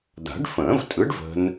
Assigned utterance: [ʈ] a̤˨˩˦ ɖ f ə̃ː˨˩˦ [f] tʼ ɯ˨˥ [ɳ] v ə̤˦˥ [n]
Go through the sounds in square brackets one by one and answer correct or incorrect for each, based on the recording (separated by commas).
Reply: incorrect, incorrect, incorrect, correct